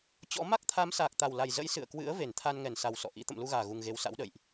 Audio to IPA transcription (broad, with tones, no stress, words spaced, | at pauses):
t͡ɕɔ̰˧˥ ma˦˥k̚t̪ʰa˨˦msaː˨˩k̚ t̪a˨˩wla˨˩j zə̰˧˥j sɨ̰˧˨ə̯kwɨ̰˧˥ə̯ ve˧˩nt̪ʰa˧nŋɛ˧˩nsa˨˩w sɔ̰˧˨ʔḭ˧˥ t̪ə̰˧˨mlu˧ɣaː˧˩ ɣu˨˩ŋɣe˨˦w sa̰˧˥wɗə̰ː˧˨jʔ